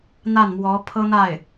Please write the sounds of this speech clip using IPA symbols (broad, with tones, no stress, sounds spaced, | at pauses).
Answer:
n̪ a˥˩ n m w ɔ˧˥ pʰ ɤ˥ n̪ a˥˩ ɪ̯